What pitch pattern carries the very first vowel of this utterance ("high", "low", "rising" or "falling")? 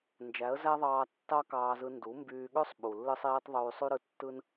rising